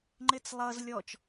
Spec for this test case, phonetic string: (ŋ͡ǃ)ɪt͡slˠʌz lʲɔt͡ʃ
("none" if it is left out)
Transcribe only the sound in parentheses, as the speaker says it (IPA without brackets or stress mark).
ŋ͡ǃ